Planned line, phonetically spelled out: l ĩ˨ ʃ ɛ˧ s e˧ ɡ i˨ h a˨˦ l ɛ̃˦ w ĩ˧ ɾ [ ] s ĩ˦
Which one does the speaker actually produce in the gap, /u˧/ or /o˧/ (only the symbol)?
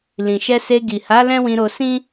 o˧